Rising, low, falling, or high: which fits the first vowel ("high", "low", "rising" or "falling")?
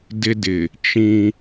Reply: high